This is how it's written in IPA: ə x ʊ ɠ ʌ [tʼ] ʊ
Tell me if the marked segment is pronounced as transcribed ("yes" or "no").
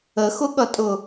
yes